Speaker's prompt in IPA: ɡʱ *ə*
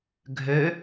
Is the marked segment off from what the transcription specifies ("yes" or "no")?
yes